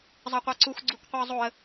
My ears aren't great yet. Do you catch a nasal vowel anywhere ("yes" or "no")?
no